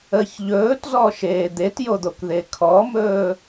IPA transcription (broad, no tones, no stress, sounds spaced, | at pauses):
ə ç ʎ ɵː t z ɔ ʃ eː d̪ e t j o d̪ o k ð e kʰ ɔ m ɵː